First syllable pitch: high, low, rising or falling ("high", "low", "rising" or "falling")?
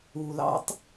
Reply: low